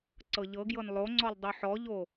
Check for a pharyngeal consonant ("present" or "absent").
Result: present